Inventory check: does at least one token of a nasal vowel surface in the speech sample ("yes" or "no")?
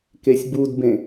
yes